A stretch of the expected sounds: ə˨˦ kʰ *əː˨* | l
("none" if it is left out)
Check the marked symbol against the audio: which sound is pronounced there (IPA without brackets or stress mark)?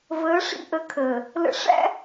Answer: əː˨